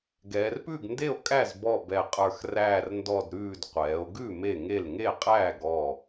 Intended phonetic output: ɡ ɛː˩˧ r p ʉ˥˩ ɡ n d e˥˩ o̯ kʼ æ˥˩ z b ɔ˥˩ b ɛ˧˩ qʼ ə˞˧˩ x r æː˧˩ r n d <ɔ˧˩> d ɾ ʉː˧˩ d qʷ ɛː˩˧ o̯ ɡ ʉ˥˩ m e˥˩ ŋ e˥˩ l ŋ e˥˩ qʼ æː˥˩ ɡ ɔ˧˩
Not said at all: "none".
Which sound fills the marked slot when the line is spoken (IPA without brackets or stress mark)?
ɔ˧˩